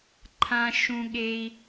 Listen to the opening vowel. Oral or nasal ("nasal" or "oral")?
nasal